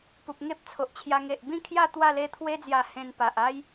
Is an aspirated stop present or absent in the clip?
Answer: present